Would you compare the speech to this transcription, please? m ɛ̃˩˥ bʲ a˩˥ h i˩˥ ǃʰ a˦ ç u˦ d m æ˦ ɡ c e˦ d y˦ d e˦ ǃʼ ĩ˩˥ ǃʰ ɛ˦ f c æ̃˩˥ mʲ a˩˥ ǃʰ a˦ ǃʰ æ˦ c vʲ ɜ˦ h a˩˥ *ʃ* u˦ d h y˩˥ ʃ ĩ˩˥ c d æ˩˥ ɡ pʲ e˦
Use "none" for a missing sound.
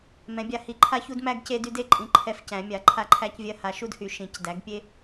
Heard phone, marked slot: ʃ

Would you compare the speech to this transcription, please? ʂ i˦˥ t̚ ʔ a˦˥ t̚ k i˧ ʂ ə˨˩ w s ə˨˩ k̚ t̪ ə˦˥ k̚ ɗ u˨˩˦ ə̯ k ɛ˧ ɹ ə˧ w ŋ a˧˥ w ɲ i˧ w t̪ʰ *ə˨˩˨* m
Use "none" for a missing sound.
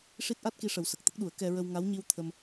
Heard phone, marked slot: ə˧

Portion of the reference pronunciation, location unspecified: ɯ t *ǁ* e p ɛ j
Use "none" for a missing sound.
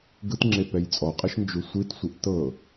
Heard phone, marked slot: ŋ͡ǁ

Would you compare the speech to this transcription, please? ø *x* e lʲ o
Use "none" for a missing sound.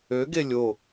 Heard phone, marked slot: ɡ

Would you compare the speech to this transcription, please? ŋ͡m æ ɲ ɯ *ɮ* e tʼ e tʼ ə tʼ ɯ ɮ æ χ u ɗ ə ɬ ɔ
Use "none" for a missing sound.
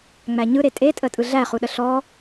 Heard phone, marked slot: ɾ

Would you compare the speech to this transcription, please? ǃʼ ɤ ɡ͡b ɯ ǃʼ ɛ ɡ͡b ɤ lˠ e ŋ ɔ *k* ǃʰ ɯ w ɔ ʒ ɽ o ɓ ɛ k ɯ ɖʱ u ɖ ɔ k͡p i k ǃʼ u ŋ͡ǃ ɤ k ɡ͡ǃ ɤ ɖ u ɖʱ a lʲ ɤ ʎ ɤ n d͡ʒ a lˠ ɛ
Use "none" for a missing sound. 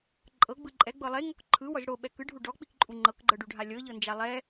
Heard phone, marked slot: k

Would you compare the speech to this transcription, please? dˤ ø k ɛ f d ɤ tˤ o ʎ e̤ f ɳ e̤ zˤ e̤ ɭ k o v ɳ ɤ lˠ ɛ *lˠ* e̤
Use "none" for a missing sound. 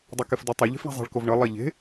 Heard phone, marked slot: ʎ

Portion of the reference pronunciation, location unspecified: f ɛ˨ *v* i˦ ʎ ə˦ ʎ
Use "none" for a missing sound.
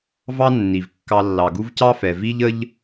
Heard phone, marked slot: v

